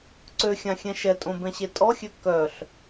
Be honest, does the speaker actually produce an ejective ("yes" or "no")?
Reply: yes